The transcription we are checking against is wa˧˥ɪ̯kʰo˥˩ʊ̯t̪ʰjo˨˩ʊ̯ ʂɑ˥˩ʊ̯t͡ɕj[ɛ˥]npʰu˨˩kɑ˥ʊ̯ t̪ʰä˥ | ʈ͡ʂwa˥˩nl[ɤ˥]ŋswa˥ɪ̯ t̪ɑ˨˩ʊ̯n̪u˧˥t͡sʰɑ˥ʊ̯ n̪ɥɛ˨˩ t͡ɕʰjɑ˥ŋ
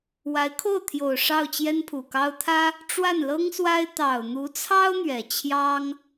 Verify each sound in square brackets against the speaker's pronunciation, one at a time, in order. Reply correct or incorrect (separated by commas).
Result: correct, correct